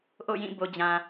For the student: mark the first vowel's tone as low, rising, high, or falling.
falling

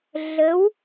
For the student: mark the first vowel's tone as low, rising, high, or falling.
rising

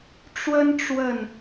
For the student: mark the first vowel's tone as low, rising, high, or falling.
high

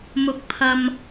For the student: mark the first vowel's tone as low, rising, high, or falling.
low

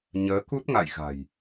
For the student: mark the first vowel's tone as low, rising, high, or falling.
rising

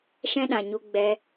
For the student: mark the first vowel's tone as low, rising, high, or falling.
high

